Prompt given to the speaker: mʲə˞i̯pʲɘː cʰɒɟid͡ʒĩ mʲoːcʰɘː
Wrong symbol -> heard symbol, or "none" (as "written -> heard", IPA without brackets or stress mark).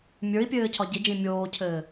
none